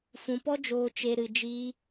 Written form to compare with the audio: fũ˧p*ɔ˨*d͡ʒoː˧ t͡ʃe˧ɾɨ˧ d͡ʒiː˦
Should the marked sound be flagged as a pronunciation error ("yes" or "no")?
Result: yes